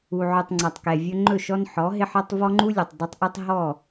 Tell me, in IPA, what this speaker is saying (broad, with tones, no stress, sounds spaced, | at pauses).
u˨ ʕ ɵ˨ tˤ ŋ͡ǀ a˨ tˤ k ɛ˨ vʲ ɵ˦ ŋ͡ǃ ɵ˦˨ ʃ ɔ˦ n ħ ɔ˨˦ ɦ ɪ˦ ħ ɔ˦ tˤ v ɔ˦ ŋ͡ǃ u˦ lʲ u˨ tˤ dˤ ɪ˦ tˤ ʔ u˦ tˤ ɦ ɔ˦˨